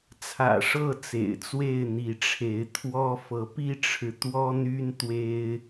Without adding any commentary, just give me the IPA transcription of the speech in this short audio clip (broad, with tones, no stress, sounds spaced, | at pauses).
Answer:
t͡sʰ ä̰˨˩ ʂ ɤ˥˨ t͡s ḛ˨˩ ɪ̯ t͡s w e˥˨ ɪ̯ n̪ i˨˦ ʈ͡ʂʰ e˨˦ ɪ̯ t̪ʰ w ɔ˦ f ɤ˨˦ p i˦ ʈ͡ʂʰ ɻ̩˨ t̪ w ɔ˦ n̪ y˦ n t̪ w e˦ ɪ̯